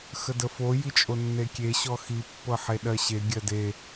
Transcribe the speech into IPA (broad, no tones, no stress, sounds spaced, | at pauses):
x ə d ə f o j i t͡ʃʼ o nː e kʲ e ɕ ɔ x i pː ɤ ħ e ɗ ɜ ɕ e ɡʲ ɜ d e